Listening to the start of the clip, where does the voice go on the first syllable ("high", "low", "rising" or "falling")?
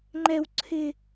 high